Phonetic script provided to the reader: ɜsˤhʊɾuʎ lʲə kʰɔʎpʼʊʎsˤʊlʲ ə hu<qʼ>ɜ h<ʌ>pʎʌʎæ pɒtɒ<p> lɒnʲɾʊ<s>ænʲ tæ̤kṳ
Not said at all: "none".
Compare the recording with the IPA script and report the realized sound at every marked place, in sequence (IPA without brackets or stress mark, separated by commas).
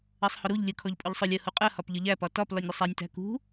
qʼ, ɒ, p, sˤ